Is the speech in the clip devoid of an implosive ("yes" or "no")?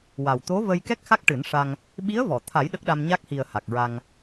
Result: no